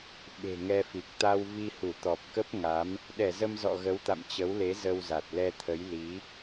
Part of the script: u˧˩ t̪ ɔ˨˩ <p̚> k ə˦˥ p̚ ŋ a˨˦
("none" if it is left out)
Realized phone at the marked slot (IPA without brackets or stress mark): p̚